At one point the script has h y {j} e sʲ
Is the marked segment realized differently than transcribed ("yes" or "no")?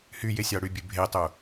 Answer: no